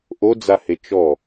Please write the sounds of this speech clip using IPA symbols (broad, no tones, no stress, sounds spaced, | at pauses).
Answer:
ʔ o d͡z a h e t͡ʃ ɔ